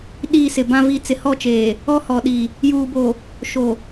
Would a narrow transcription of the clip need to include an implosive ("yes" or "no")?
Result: yes